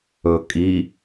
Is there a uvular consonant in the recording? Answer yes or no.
no